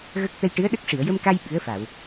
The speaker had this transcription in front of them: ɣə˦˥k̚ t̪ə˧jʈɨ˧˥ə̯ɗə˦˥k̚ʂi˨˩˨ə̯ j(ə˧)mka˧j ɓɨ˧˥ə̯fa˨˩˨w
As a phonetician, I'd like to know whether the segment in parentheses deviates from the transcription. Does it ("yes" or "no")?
no